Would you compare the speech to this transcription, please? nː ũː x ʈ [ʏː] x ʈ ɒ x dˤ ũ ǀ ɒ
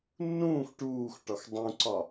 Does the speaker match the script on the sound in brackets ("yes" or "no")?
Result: no